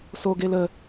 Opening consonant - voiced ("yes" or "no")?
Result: no